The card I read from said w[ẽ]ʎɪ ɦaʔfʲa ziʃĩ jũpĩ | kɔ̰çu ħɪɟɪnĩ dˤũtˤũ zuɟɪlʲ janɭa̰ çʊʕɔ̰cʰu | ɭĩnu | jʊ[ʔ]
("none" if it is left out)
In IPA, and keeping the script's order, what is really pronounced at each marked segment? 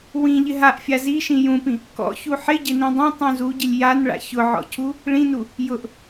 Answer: ĩ, ʔ

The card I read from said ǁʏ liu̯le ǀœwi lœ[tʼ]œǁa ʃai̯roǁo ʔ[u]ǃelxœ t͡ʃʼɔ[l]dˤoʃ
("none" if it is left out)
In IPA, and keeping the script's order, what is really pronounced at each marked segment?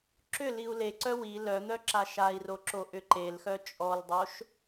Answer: n̪, ʏ, l

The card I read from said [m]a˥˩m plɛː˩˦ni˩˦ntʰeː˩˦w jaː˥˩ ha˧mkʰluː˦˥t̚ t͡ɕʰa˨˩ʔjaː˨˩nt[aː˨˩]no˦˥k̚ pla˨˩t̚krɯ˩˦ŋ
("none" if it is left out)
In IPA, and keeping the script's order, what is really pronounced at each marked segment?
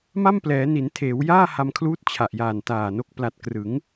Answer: m, aː˨˩

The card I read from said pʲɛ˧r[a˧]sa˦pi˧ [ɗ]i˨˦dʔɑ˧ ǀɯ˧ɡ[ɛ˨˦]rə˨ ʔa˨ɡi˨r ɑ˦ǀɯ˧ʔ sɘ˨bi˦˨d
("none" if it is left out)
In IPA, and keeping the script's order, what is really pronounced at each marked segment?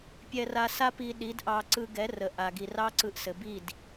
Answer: a˧, ɗ, ɛ˨˦

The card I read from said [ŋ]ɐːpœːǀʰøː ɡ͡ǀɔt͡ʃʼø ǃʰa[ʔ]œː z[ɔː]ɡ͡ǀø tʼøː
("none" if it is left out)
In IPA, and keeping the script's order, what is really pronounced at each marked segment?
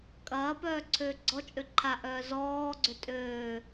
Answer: kʼ, ʔ, ɔː

